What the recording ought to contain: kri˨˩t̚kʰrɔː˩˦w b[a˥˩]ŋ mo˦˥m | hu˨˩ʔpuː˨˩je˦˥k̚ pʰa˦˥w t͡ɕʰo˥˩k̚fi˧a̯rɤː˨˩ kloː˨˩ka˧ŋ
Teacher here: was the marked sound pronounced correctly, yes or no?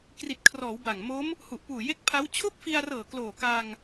no